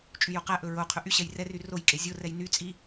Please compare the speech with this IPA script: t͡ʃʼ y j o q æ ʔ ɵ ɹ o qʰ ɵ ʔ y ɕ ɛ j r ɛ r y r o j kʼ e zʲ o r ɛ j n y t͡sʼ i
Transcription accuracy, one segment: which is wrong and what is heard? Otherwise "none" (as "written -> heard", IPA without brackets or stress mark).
none